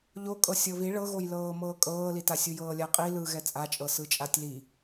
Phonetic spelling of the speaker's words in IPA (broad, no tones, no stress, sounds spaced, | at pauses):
ʎ o kʼ ɤ sʲ ɤ β i ɭ ɤ ɣ o j l ɤː m ɤː kʼ ɤː l i t a sʲ u j ɤː lʲ a qʼ i l ɯ ɣ ɛ t͡sʼ a t͡ʃʼ ɤ s ɯ t͡ʃʼ a tʲ l i